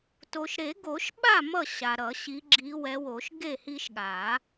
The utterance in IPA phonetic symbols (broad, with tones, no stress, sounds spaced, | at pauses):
t o˨ ʃ ɾ e˨˩˦ ɡ o˨˩˦ ʃ ɓ a˥˩ m ʌ˥˩ ɕ a˨ ɾ ʌ˨˩˦ ɕ i˨˦ ɡ͡ǁ i˨˦ w ɛ˨˦ w o˨˩˦ ʃ ɡ e˥˩ h i˦ ʃ ɠ a˨˩˦